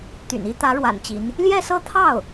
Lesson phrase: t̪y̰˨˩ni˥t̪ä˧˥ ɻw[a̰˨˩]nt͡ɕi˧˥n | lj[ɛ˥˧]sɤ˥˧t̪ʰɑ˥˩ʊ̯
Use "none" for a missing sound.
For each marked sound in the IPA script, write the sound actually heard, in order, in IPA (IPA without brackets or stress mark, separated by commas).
a̰˨˩, ɛ˥˧